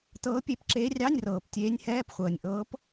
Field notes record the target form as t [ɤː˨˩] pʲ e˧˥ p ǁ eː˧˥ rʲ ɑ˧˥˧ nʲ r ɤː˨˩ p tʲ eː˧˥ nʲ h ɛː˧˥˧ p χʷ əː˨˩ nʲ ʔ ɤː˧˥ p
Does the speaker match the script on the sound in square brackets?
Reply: no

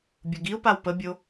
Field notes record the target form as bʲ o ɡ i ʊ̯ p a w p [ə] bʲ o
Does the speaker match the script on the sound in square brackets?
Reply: yes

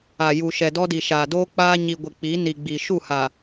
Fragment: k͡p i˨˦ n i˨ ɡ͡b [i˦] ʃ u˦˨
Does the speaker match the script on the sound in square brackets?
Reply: no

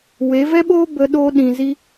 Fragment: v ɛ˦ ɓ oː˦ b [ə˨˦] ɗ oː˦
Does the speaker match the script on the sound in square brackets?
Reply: no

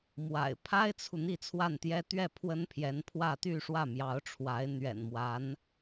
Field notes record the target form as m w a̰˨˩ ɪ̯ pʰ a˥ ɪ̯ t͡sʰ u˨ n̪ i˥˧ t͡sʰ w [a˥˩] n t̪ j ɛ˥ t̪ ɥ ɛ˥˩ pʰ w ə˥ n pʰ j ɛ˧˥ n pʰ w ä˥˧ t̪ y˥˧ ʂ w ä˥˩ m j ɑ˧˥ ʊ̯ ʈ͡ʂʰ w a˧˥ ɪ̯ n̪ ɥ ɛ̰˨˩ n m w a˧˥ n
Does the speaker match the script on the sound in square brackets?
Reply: yes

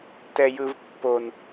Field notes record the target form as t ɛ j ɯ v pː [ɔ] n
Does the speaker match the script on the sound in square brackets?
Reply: no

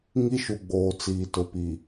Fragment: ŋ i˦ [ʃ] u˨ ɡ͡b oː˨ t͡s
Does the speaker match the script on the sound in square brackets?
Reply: yes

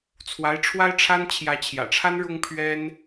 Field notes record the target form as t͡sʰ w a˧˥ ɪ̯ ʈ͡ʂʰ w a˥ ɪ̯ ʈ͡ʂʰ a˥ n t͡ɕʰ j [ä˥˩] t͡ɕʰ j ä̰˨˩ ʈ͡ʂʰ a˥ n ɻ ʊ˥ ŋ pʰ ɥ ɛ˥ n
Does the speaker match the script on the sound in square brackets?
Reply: no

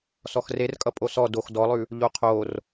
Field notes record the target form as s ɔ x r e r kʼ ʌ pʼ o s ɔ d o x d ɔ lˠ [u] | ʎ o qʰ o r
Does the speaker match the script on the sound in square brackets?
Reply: no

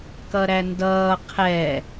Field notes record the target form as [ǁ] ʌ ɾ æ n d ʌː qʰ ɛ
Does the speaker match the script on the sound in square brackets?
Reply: no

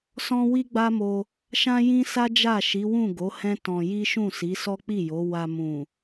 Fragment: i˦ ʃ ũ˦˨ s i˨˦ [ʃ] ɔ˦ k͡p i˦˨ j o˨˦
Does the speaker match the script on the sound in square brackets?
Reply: no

